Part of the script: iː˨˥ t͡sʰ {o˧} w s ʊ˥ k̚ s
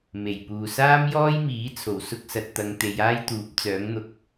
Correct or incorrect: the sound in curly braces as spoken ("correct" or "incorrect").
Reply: incorrect